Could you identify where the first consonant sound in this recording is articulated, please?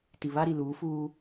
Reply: alveolar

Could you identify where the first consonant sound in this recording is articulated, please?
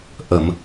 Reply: glottal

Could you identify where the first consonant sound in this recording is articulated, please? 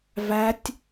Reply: labial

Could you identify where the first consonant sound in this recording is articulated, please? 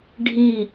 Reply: retroflex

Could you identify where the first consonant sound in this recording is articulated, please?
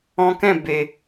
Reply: velar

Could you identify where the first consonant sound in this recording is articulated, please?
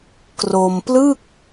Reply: velar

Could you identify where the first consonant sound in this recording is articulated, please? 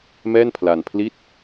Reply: labial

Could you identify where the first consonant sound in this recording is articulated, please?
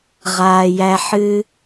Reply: uvular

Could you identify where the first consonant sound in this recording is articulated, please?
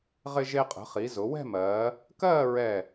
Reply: uvular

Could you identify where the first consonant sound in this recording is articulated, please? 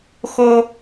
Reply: velar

